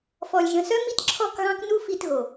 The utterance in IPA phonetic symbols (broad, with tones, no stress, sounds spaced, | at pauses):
f ɔ˨ lʲ ʒ ə̃˨ s œ˦ m i˦ t ǁʰ ɔ˦˨ k ɣ ɑ̃˦ k n u˦ f i˧ t ɣ o˨